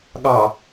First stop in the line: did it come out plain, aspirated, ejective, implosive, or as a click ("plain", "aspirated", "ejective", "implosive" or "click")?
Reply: implosive